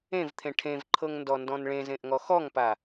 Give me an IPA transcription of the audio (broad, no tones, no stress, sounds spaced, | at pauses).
ẽ v t̪ʰ ẽ ʈʰ ẽ v ǃʰ ɤ ŋ n d ɔ n d ɔ̃ n ɭ ẽ z ẽ ʔ ŋ ɔ x ɔ ŋ p a